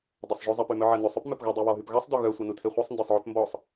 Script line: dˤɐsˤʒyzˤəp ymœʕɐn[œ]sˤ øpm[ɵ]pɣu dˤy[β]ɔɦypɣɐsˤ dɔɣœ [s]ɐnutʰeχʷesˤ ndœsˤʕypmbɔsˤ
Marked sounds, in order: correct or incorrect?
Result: incorrect, incorrect, correct, incorrect

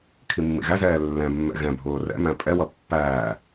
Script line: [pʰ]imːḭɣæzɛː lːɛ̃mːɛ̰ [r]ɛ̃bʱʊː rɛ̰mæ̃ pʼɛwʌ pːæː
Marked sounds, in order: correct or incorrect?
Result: incorrect, incorrect

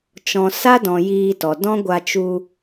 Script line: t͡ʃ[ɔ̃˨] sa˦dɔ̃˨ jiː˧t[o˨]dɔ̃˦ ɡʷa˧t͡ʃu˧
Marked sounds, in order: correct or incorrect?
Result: correct, incorrect

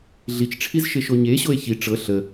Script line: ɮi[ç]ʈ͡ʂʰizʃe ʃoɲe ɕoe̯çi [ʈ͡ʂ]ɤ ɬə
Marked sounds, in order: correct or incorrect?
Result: incorrect, correct

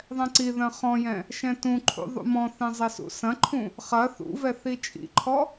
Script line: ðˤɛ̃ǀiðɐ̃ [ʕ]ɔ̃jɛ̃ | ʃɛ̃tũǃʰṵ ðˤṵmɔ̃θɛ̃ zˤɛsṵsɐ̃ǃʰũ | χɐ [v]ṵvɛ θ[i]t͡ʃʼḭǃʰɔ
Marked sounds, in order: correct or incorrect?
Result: incorrect, incorrect, correct

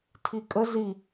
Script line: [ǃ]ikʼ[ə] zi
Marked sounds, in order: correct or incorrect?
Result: incorrect, correct

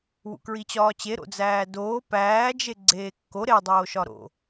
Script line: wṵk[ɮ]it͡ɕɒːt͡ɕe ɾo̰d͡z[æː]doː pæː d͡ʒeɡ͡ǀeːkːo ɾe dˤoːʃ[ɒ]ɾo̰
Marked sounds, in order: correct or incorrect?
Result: incorrect, correct, correct

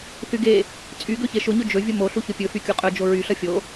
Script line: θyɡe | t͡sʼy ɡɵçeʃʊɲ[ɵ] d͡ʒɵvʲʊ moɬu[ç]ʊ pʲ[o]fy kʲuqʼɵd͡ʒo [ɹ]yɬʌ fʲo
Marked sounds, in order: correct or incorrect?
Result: correct, correct, incorrect, correct

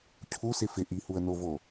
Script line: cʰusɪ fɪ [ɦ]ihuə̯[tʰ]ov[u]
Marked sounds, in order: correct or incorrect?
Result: incorrect, incorrect, incorrect

